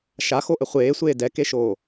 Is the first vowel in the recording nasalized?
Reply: no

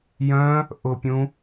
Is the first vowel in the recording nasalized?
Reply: yes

